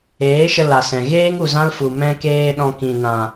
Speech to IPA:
eː˨˦ ʃ ə˧ l a˨ s ɛ̃˨ ɣ eː˦ ŋ u˨ z ã˦ l f u˨ m ɛ̃˦ k eː˦ ɗ ɔ̃˧ k ĩ˨ n ã˨

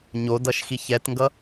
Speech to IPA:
ɲ o d ʌ ʃ x i ç ɛ t ŋ ɡ ʌ

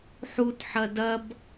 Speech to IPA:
ħ u t ħ ɐ d ɐ b

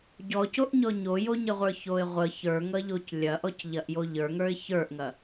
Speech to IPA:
ɟ ɔ c o ʔ ɲ ɔ ɲ o j o ɲ ə ʁʷ ə˞ ç o ɪ̯ ʁʷ ə ç ə˞ ŋ ʌ ʎ o c lʲ ɐ ʔ ɔ c ʎ ɐ ʔ j o ʎ ə˞ ŋ ə˞ ɪ̯ ç ə˞ ʔ ŋ ɐ

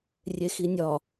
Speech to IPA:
rʲ e x i nʲ ɒ

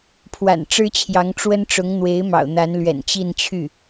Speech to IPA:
pʰ w a̰˨˩ n ʈ͡ʂ ɻ̩˥ t͡ɕʰ j ɑ˧˥ ŋ ʈ͡ʂ w ə˥ n ʈ͡ʂ ʊ˧˥ ŋ n̪ w e˧˥ ɪ̯ m ɑ̰˨˩ ʊ̯ n̪ a˧˥ n l ɥ ɛ̰˨˩ n t͡ɕ i˥˧ n t͡ɕʰ y˥˩

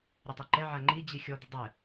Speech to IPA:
ɾʲ o tˤ a ǃ ɛ ʕ a ŋ͡ǃ i d͡ʑ i xʲ ɔ d̪ ɘ dˤ ɘ

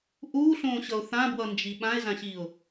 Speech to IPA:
ʔ uː ɬ õː ɕ ʌ ʊ̯ θ ã b w ʌ n d͡ʒ i ɓ ã ɪ̯ z ã ɕ iː ʊ̯

